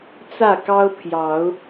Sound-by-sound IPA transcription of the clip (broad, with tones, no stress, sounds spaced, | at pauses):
t͡s ä˥˨ k ɑ˦ ʊ̯ pʰ j ɑ˨˦ ʊ̯